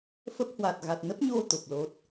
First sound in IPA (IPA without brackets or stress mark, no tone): f